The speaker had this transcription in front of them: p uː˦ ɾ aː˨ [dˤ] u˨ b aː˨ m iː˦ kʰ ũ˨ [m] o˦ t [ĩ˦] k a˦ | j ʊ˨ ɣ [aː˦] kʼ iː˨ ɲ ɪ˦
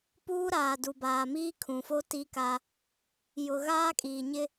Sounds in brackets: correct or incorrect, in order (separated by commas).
incorrect, incorrect, incorrect, correct